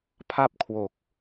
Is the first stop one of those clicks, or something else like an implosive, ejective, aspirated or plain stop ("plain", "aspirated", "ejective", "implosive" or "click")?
aspirated